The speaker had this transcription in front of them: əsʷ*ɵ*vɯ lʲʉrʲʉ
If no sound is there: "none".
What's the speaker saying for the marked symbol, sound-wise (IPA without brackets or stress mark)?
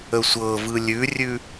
ɤ